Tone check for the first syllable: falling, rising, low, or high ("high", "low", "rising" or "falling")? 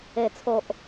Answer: low